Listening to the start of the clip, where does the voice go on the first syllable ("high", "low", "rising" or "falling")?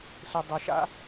low